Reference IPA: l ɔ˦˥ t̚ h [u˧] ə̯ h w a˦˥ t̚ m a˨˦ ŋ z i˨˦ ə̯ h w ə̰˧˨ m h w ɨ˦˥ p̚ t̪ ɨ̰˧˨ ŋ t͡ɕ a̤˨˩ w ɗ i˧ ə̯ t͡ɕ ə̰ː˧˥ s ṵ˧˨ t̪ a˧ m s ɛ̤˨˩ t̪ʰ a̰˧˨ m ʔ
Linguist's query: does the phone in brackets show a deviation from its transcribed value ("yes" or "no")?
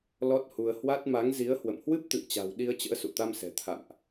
no